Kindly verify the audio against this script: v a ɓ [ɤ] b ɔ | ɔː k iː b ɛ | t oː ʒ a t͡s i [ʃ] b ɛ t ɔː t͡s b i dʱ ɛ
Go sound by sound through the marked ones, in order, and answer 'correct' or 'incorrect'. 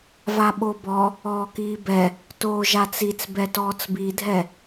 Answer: incorrect, incorrect

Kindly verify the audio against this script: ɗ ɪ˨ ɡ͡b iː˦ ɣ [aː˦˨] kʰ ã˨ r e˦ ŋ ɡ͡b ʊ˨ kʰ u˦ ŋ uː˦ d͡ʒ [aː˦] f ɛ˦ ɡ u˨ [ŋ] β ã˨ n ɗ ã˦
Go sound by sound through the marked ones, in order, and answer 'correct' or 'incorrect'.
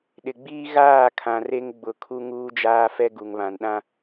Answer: correct, correct, correct

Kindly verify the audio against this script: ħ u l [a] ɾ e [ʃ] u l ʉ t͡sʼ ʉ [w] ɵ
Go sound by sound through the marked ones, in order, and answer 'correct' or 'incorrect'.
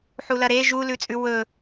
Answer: incorrect, incorrect, correct

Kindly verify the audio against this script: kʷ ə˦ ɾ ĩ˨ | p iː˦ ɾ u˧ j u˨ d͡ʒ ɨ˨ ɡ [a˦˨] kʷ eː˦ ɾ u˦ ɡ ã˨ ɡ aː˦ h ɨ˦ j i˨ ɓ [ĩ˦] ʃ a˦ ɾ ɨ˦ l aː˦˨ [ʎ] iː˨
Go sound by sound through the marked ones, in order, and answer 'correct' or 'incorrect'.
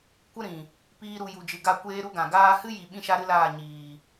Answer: correct, correct, incorrect

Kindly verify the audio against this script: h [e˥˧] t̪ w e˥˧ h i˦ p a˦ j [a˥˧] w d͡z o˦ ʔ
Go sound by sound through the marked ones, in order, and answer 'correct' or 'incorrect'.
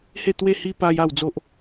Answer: correct, correct

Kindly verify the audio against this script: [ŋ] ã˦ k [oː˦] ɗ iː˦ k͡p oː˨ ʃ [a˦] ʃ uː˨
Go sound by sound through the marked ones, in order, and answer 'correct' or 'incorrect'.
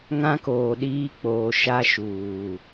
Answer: correct, incorrect, correct

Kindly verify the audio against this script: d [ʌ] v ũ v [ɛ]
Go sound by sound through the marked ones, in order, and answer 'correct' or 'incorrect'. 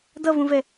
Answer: correct, correct

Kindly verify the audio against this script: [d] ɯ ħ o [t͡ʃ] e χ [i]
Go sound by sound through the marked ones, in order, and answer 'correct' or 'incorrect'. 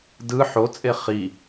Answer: correct, incorrect, correct

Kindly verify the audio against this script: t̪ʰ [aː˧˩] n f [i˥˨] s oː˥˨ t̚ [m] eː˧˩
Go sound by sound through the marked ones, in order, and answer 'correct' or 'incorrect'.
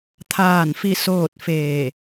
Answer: correct, correct, incorrect

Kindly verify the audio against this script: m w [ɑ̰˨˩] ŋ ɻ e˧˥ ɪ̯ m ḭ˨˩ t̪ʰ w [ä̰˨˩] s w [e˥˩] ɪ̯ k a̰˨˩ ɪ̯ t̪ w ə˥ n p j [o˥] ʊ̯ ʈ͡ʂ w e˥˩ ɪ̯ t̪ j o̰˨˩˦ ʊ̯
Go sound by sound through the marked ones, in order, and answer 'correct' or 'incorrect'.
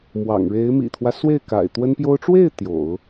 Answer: correct, incorrect, correct, correct

